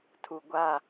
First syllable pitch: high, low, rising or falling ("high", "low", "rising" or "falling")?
low